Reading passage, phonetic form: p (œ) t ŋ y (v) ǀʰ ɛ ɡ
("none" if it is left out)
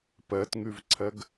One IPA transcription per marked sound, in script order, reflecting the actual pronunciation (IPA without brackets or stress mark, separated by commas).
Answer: ɛ, v